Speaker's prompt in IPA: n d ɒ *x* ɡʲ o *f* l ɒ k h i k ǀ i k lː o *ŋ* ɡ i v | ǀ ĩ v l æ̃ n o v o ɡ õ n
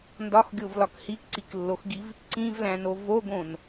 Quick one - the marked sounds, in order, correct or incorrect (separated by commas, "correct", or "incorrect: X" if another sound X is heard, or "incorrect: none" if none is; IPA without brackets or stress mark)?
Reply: correct, incorrect: v, incorrect: x